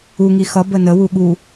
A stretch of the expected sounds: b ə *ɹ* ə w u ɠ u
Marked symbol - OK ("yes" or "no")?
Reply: no